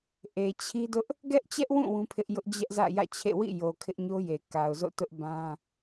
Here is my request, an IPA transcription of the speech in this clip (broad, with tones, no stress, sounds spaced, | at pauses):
ʔ e˨ t͡ɕʰ i˦ d ʊ˦ ʔ | ɡ ɛ˦ ʔ t͡ɕ ɛ˦ ʔ w ũ˦˨ w ũ˦ pʰ ɪ˦ ʔ j ʊ˦ ʔ d͡ʑ ɛ˦ ʔ z ä̰˦˨ j ä̰˦˨ t͡ɕʰ ḛ˦˨ w ḭ˦˨ j o˨ kʰ ɪ˦ ʔ ɲ o˦ j e˨ k a˨ ʊ̯ z o̰˦˨ t ʊ˦ ʔ b ã˦